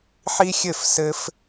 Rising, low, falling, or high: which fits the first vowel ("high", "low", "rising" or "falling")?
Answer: high